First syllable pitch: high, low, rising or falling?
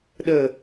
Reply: low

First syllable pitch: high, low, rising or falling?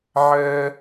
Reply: high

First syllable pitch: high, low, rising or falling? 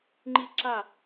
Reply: falling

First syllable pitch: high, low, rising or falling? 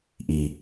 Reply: low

